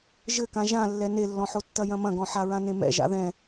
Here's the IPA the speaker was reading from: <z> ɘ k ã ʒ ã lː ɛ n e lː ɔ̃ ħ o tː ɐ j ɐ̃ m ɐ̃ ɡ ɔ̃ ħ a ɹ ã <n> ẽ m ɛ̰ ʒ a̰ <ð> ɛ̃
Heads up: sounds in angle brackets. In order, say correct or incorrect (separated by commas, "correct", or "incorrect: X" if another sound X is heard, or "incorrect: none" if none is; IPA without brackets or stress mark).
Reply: incorrect: ʒ, correct, correct